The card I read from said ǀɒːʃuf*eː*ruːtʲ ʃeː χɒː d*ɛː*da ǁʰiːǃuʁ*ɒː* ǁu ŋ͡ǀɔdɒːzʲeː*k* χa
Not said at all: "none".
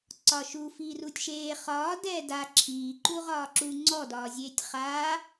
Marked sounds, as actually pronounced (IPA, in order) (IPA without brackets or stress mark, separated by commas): iː, ɛː, ɒː, tʲ